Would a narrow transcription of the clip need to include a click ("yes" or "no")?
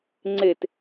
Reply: yes